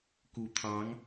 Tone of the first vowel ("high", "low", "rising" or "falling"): low